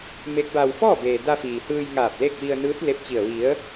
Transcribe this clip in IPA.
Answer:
m e˧˥ k̚ b a˧ w f ɔː˥˨ b eː˩ d a˧ f iː˩ h ɯː˧ j ŋ aː˧˩ p̚ l e˥˨ k̚ ʋ i˧ ə̯ n ɯː˧˥ t̚ l e˧ p̚ t͡ɕ i˧˩ ə̯ ʋ i˩˧ ə̯

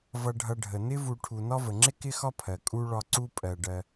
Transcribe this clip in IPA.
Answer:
v ʌ˨ ɖʱ ʌ˨ ɖʱ ə˩ n ɪ˥ v u˨ ʈʰ u˨ n ɒ˦ v ə˩ ŋ͡ǁ ɪ˥ k ɪ˥ x ɒ˥ pʰ ɜ˩ kʼ u˥ ɭ ɒ˦ ǀ u˦ pʼ ɜ˨ ɖ ɜ˦

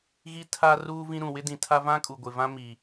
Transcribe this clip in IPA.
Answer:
ɣ i˦ tʰ a˦ r uː˦ v ĩ˦ ɾ ũ˨ w ɪ˦ d ĩ˨ tʰ a˦ v ã˦ kʼ u˨ ɡʷ ɪ˨ v ã˦ m i˨

